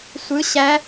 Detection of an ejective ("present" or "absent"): absent